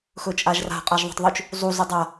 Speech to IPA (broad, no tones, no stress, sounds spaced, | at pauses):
x ɵ t͡ʃʼ a ʒ r a̤ qʼ a ʒ ðˤ o̤ tˤ ðˤ ʉ t͡ʃ | zˤ u z ɵ dˤ a